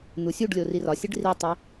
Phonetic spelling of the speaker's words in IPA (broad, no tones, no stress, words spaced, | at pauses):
n̪usʲuɖlʲo rirɒsʲeɖ ritˤi